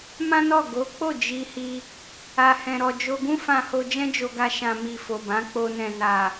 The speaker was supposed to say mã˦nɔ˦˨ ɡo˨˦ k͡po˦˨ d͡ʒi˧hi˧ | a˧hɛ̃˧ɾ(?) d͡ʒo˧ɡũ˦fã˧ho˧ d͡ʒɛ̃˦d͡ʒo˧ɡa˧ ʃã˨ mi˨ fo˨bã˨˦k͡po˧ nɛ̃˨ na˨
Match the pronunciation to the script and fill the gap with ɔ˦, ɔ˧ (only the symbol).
ɔ˧